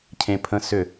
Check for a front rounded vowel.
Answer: present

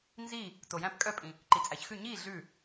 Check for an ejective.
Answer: present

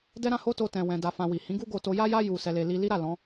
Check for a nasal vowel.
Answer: present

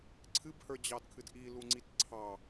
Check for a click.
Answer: present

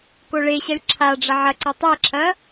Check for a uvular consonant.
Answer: absent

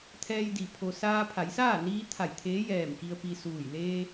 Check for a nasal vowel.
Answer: absent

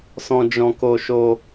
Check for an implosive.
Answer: absent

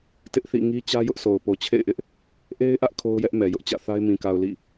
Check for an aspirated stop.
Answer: present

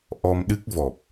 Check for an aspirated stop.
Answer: absent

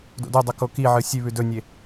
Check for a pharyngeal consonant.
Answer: present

